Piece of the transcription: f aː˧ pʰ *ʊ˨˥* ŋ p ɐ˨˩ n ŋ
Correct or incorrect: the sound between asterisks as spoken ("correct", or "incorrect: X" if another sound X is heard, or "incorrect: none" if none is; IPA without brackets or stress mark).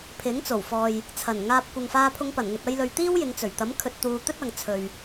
incorrect: ʊ˧